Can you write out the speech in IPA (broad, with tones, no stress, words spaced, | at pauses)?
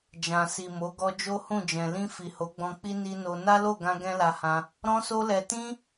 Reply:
d͡ʒã˨si˨mo˨˦ ɡɔ˧d͡ʒo˦hũ˦˨d͡ʒɛ̃˨ lĩ˧ fi˨ho˨˦ɡ͡bɔ̃˧k͡pi˦ ni˧ no˧ na˦lo˦˨ɡã˧ ɡɛ̃˦la˧hã˧ | ɾɔ̃˦so˦lɛ˧ tĩ˦